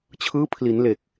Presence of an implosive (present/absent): absent